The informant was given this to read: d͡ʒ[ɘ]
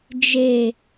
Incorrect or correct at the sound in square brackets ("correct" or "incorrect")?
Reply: incorrect